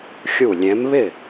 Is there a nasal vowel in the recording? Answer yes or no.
yes